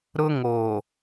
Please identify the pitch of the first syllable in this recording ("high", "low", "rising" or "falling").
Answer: high